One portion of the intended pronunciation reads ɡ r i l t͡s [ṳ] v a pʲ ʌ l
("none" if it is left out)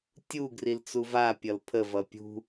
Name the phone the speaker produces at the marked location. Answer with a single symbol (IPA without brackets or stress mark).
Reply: u